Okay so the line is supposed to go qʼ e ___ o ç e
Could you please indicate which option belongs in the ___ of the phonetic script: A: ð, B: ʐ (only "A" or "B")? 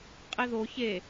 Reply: A